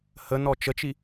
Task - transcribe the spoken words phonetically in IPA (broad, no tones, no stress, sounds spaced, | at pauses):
h ə n ɔ t͡ʃ ə t͡ʃ i